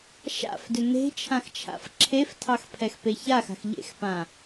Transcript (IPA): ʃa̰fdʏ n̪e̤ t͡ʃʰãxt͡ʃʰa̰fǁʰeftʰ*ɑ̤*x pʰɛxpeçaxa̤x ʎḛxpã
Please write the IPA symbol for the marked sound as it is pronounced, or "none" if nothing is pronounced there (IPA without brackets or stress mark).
ɑ